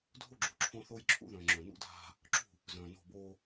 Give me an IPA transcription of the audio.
dʱ o˦ ɡ͡ǁ u˨ ǁʰ õ˦ θ o˦ j ǁʰ ṵ˦ ð œ̃ː˨ ŋ͡ǁ œ̃˨ n ṵ˦ dʱ a̤˦ | ǁ ṳ˦˨ | z œ̃ː˨ n o̤˦˨ b oː˦

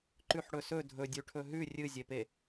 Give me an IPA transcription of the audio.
ǃ ʉ ħ ɽ ɵ s ɵ dʱ ɵ dʲ ʉ ʈʰ ɵ ɦ ʉ rʲ ɨ zʲ e p e

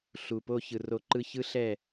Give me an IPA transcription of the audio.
ɬ u˨ p o˧ ç ɯ˨ r o˧ ǃ ɯ˧ ç ɯ˦ ɬ ɛ˦˨

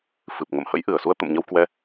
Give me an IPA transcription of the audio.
f ɨ˨˩ p̚ ŋ ə̰˧˨ m h ə̰˧˥ j ʔ ɨ˧˩ ə̯ s u˧ ə̯ t̪ ə̰˧˨ m ɲ ə˧ w k w ɛ˧

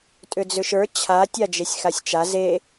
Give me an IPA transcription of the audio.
tʼ ʏ d͡z ʏ ʃ ə˞ t͡ɕʰ a tʲ a d͡ʒ e sʲ x a sʲ t͡ʃ a z e

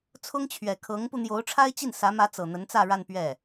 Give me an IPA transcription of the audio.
t͡sʰ ʊ˥ ŋ t͡ɕʰ ɥ ɛ˨˩ kʰ ɤ˧˥ ŋ p u˧ n̪ j o˧˥ ʊ̯ ʈ͡ʂʰ a˥ ɪ̯ t͡ɕ i˥˩ n s ä˧˥ m ä˧˥ t͡s ɤ˨˩ n̪ ə˧˥ n t͡s ä˥˧ ɻ a˥˧ n p ɥ ɛ˥˩

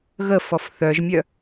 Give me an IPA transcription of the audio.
ɣ ə f ɔ f θ œ ʒ mʲ œ

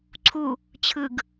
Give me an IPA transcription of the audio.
ǀʰ u | t͡ɕʰ ɯ ɡ

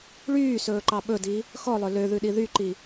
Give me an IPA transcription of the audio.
ɭ yː s ɵː ǃ ɑ ɓ ɵ d i | x ɔ lˠ œ l ø ð ʉ ɗ i ð y ǃ i

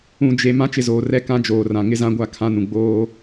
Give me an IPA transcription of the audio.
ũ˨ d͡ʒ e˨ m ã˦ t͡ʃ ɪ˨ z oː˨ r ɛ˦ k ã˦ d͡ʒ oː˨ r ã˨ ŋ ɪ˦ z ã˦ ɡʷ a˦˨ kʰ ã˦ n ũ˨ ɡ͡b oː˦

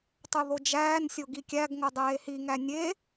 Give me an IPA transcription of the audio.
tˤ u ð o d͡ʒ æː n sʲ o ɡ i kʲ æ ɡ ŋ o dˤ eː h i ŋ æ nʲ e

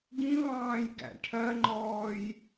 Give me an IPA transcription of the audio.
ɡ ĩ β ɑ̃ː j ɡ æ̰ ʈʰ ɜ ŋ͡ǃ ɔː j

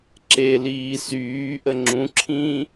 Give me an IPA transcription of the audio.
ǁ e l iː s yː ʔ ə ŋ͡ǁ ũ ǁʰ ĩː

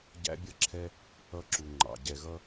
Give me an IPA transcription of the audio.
ɟ æ̰˦ bʲ ʌ˦ ǁʰ ɛ˦ | ʌ˦˨ ǁ u˨ ŋ͡ǃ ɑ̰˨ ɟ ɛ˨ ɣ ʌ˦

